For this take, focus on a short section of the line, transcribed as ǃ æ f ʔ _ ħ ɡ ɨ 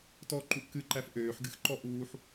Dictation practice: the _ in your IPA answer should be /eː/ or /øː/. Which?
øː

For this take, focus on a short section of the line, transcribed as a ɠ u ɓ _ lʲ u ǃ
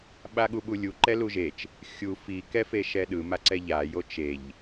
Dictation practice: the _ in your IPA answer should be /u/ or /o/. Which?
u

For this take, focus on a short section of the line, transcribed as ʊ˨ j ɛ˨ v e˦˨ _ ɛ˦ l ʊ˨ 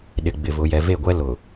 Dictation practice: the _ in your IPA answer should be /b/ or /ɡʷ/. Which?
ɡʷ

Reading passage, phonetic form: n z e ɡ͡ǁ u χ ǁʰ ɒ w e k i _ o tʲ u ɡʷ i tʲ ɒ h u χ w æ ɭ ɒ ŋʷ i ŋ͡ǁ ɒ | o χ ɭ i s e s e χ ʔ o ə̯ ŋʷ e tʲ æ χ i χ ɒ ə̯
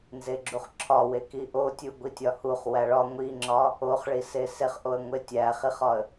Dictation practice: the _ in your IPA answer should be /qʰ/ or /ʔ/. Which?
ʔ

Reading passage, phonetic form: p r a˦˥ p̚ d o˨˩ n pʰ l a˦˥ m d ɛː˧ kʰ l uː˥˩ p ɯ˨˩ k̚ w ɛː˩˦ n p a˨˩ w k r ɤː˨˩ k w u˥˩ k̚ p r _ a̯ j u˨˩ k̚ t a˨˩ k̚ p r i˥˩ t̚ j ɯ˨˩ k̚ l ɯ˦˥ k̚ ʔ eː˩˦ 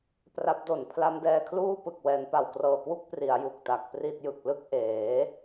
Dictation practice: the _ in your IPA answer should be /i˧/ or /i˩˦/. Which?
i˩˦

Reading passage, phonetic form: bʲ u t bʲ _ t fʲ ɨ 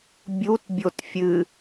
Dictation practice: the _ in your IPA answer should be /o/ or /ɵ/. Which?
o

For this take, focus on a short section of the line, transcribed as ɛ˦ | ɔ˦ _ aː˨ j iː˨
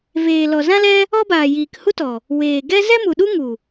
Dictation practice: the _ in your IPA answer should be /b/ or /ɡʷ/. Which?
b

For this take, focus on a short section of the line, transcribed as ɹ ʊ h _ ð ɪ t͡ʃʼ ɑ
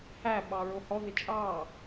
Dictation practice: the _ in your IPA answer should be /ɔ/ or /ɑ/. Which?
ɔ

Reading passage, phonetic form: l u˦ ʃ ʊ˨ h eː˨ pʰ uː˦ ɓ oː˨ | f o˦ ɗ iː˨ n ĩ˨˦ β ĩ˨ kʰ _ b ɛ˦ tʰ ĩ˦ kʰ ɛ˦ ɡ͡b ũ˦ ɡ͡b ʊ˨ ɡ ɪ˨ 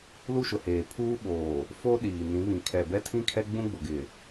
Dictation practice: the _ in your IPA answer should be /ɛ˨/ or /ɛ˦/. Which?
ɛ˨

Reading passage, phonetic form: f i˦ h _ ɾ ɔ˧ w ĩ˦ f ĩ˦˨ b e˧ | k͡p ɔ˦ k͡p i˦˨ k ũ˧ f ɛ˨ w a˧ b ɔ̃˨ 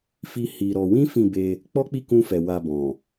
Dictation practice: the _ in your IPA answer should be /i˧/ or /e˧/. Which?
i˧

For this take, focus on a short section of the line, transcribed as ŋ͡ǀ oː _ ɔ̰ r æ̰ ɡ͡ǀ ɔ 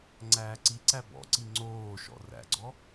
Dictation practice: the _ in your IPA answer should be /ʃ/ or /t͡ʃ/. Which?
ʃ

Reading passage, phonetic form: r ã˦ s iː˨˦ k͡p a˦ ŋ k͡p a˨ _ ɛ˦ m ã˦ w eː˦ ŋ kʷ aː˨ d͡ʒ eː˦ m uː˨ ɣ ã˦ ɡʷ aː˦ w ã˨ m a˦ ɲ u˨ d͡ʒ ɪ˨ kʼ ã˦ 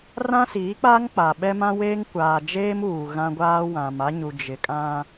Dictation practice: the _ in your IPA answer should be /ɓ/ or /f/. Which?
ɓ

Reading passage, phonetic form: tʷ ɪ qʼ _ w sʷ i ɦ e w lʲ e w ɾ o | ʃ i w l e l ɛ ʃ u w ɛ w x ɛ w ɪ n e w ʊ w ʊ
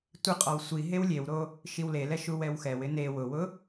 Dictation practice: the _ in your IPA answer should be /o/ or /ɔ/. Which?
ɔ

